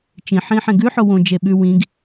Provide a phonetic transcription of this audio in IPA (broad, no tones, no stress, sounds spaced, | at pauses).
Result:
t͡ʃ ĩ ħ ĩ ħ ẽ ɡ ʉ ħ o w õ d͡ʒ e ɓ ʉ w ĩ ɡ